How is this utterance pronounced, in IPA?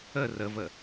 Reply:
ə r ə v ə

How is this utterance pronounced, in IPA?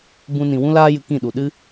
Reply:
b ũ˦ n ĩ˧ w ũ˦ l aː˦ j ɨ˧ k ĩ˦˨ ɗ u˨ ɗ ɨ˦

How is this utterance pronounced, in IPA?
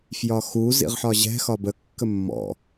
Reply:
f j ɒ x u z ḭ ʁ ħ ɒ ʑ ɛ̤ x ɒ b ə kː ə mː ɔ̰

